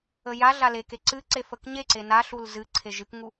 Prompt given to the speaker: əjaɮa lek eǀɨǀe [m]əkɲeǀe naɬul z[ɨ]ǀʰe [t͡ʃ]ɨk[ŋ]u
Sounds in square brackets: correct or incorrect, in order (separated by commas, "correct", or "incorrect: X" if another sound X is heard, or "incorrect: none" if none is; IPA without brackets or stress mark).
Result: incorrect: f, correct, incorrect: ʒ, correct